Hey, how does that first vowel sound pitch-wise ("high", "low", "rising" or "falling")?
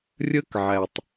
high